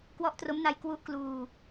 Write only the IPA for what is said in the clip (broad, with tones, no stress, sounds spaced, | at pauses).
k w ɔ˦˥ ʔ t r o˦˥ m n a˧ j k w u˦˥ ʔ k l uː˧